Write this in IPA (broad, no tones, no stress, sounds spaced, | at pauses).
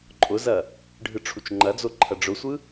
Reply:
ǃʼ ʊ z ɐ | ɖʱ ɯ ʈ͡ʂʰ u t͡ʃ ŋ͡ǃ ɐ d͡z o ǃʰ ɐ ɖ͡ʐ ʊ sʷ ɯ